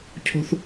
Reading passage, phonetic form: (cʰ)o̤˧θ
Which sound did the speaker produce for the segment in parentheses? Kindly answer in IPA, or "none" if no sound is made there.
cʰ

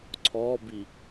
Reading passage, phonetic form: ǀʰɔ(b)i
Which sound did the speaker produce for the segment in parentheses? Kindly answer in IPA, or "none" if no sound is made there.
b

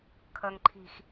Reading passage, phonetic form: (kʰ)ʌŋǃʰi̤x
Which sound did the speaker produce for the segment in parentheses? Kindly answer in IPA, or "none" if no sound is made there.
kʰ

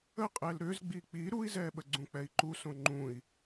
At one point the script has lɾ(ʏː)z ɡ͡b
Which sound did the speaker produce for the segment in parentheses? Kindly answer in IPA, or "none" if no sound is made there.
ʏː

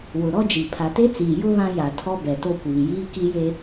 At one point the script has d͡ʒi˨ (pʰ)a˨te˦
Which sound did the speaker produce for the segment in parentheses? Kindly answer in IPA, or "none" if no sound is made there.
pʰ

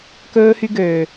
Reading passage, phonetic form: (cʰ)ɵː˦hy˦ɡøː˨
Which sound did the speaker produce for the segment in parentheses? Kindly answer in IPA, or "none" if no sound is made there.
k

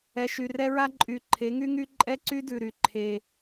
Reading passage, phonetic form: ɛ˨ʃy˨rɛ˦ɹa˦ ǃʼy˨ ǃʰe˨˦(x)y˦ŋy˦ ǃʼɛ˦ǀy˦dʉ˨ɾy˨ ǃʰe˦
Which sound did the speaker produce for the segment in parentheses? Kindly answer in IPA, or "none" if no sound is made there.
ŋ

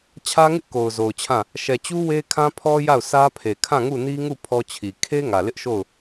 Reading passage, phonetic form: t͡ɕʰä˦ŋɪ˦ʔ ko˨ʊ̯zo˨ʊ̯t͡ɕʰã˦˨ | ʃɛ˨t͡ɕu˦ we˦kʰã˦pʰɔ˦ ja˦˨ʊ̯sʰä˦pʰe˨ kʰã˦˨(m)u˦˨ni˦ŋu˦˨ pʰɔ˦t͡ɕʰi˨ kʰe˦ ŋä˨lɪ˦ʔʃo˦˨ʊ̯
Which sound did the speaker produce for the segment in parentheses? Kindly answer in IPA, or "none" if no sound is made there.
ŋ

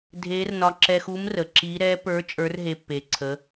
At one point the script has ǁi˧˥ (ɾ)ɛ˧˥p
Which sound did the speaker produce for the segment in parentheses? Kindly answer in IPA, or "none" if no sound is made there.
ɾ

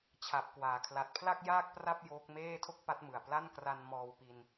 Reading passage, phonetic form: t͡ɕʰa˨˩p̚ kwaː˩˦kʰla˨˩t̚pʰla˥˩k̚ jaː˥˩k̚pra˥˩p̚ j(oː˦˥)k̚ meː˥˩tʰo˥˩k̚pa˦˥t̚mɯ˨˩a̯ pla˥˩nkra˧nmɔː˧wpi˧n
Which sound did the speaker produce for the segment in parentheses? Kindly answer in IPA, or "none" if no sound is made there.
oː˦˥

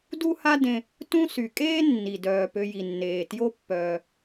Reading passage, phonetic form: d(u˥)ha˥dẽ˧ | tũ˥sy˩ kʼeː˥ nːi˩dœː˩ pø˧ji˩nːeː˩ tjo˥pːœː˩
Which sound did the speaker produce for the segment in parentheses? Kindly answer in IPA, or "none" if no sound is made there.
u˥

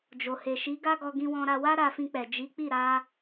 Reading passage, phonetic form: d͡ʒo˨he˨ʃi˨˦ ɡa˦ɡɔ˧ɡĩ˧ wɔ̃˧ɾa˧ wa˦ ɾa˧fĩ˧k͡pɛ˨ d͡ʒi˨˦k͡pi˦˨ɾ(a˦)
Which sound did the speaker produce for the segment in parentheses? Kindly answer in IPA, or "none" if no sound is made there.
a˧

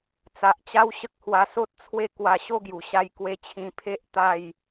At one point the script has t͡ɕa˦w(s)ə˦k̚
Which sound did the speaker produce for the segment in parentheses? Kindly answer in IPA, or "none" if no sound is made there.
ɕ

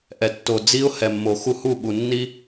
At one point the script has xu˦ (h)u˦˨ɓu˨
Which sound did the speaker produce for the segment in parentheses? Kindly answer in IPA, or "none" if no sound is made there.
h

